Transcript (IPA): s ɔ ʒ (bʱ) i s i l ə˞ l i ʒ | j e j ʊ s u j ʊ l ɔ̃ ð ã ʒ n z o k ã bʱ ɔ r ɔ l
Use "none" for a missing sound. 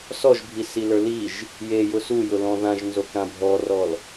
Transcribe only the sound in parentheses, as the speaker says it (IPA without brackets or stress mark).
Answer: bʱ